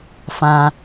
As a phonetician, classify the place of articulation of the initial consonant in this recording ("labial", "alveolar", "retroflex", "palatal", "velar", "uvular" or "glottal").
labial